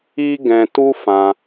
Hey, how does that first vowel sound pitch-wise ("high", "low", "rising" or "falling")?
high